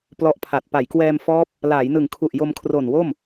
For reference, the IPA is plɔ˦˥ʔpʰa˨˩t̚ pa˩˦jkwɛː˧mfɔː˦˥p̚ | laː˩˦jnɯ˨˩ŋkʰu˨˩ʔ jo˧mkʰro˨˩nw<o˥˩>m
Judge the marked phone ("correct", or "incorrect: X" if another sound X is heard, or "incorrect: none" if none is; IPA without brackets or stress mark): correct